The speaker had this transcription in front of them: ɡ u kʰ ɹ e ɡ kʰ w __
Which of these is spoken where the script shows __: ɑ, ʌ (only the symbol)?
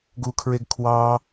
ɑ